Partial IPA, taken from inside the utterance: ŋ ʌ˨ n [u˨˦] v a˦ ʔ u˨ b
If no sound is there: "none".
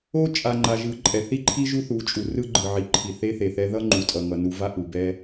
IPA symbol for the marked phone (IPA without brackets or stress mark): u˨˦